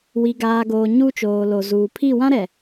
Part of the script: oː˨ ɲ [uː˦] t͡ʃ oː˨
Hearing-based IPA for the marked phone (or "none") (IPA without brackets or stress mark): u˦